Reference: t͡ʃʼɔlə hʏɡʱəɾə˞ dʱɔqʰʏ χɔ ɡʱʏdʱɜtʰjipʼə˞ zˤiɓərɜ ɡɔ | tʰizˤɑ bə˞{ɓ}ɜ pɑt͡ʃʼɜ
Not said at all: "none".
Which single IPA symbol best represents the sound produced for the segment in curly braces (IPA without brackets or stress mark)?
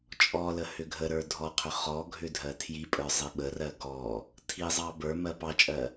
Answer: m